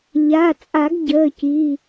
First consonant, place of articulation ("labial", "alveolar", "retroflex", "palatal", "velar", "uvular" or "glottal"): palatal